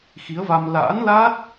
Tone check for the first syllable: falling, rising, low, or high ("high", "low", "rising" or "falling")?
rising